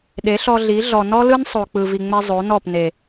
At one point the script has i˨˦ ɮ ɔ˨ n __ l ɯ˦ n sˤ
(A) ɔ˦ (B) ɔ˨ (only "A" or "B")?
A